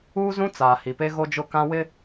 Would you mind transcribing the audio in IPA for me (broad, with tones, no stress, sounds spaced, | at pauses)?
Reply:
uː˦ z ũ˦ t͡s aː˨ h i˨ p e˦ ɣ o˦ d͡ʒ ʊ˦˨ k ã˦ w ɪ˦